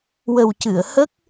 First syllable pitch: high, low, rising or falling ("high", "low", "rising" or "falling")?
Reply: low